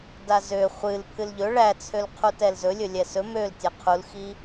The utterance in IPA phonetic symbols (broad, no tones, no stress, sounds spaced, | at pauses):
d a z ø χʷ ɨ l pʰ ɨ l ʎ ɵ ɭ æ t͡sʰ ø l qʰ u t ɛ l z ɵ lʲ ɵ lʲ ɛ s ɵ m ø l tʲ ɛ qʰ u l x i